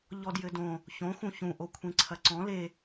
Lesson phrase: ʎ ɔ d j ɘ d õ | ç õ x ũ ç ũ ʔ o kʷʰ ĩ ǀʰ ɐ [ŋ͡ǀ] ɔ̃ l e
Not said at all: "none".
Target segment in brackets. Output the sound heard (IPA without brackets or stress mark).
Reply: ǀ